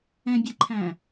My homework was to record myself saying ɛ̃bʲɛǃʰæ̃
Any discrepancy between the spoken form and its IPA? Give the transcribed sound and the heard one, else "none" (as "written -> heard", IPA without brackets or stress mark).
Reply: none